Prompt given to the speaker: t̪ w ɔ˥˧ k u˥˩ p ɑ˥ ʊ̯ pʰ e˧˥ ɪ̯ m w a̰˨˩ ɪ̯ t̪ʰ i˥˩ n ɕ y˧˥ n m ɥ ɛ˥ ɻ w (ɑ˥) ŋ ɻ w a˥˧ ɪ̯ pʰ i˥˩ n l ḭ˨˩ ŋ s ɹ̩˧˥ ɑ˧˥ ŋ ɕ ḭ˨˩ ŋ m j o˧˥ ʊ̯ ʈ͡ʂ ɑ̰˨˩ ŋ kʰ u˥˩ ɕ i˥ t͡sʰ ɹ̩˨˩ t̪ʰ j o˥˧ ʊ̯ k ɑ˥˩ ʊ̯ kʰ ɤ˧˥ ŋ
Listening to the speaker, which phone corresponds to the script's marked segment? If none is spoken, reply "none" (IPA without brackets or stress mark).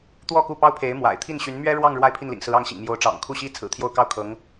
ɑ˥˧